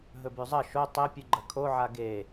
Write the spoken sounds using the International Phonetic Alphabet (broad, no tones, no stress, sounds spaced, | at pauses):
ɦ ɵ b ʉ zˤ ɐ ʃ o tˤ e pʲ ʉ ɡ͡ǃ ɐ kʰ o ʕ a ɡ e